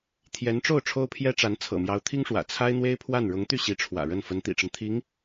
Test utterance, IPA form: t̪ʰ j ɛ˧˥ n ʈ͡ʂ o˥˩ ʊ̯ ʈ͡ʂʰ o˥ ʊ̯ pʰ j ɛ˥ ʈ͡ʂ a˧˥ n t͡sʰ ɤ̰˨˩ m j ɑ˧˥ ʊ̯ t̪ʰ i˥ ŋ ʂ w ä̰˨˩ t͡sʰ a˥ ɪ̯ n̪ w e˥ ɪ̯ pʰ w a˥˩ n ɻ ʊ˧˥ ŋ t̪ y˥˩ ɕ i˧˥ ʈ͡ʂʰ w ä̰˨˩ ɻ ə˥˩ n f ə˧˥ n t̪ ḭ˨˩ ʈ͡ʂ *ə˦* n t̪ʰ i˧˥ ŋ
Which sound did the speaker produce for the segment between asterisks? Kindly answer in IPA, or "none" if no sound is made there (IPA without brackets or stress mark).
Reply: ə˦